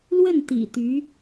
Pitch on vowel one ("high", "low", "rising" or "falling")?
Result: falling